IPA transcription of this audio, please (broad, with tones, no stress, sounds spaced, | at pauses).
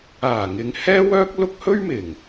aː˨˩ ŋ ɪ˨ ŋ h ɛː˥ w œː˥ k̚ l ʊ˥ k̚ h ɵ˥ ɥ m ɪ˨˩ ŋ